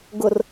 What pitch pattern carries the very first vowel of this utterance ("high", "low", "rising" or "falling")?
low